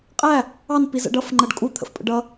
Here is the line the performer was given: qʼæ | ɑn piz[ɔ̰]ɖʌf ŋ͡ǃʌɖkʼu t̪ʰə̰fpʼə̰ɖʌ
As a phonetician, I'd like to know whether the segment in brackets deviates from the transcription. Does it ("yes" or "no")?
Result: yes